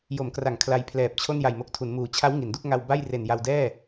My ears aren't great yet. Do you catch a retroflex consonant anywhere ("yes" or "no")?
no